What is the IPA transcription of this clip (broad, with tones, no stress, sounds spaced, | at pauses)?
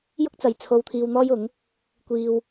j ʊ˥ k̚ t͡s ɐ˨˧ j t͡sʰ o˧ w t̪ʰ iː˧ w n̪ ɔː˥ j ʊ˨˥ ŋ | kʷ iː˧ w